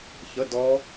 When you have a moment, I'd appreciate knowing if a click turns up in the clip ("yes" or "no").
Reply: no